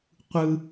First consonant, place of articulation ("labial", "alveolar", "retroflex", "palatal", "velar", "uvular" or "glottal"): uvular